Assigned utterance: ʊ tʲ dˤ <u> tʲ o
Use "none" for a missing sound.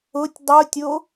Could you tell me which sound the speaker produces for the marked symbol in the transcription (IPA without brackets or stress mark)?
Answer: u